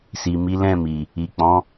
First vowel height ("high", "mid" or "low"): high